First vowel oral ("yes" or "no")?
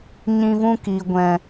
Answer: no